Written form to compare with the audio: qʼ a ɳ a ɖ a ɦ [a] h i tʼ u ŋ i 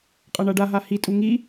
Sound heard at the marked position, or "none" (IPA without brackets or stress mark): a